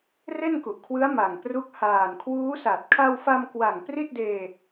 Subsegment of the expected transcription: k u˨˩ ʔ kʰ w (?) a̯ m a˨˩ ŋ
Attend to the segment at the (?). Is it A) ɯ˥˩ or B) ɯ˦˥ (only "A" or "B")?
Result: B